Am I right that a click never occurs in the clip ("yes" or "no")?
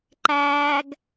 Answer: no